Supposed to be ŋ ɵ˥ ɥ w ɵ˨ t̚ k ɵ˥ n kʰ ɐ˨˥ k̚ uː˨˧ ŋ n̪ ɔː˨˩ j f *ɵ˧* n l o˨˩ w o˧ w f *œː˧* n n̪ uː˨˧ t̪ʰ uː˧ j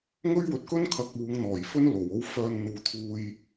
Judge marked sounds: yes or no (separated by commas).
no, yes